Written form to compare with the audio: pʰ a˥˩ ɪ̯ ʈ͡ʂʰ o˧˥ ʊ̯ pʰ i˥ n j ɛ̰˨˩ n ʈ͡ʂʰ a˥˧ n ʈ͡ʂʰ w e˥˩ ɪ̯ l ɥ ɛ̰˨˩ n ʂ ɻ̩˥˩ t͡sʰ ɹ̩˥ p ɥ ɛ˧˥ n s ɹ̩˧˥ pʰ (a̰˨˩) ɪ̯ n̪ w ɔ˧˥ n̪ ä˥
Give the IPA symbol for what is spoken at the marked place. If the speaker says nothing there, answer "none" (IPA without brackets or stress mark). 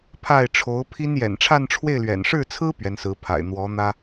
a̰˨˩